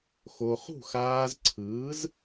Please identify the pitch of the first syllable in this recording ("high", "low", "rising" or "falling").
low